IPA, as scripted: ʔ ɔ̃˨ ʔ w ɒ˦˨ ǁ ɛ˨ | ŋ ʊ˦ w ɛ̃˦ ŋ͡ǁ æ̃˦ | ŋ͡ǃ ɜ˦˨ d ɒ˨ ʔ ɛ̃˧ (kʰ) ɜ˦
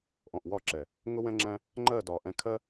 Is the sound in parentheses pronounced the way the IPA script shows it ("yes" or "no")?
yes